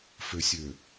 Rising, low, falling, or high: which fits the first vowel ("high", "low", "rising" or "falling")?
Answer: low